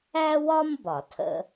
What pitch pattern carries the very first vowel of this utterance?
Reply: high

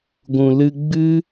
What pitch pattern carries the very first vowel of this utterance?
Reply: low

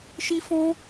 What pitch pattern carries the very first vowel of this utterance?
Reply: high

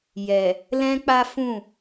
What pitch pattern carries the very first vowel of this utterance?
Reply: low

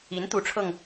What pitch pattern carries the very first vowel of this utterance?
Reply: rising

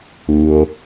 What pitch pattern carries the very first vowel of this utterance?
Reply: low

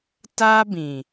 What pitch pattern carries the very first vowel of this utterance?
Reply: high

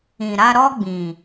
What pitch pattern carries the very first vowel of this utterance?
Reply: low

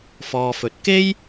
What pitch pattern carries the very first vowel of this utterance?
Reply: low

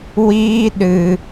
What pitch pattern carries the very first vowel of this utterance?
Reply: high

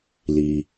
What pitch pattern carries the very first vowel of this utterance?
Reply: low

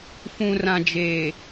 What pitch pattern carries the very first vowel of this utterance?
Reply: low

